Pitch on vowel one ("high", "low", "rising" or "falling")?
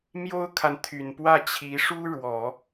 high